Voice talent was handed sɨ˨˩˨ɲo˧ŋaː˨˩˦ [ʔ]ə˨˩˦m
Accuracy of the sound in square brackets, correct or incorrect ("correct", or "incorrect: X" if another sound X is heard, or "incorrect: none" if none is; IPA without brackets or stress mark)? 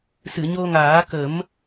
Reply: incorrect: k